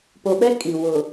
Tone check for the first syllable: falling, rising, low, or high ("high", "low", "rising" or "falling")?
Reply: low